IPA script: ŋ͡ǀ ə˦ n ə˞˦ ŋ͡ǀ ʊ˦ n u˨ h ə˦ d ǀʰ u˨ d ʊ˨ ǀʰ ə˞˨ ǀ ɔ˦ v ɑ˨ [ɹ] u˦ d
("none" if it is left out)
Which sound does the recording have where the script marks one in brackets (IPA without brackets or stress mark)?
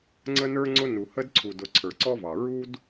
ɹ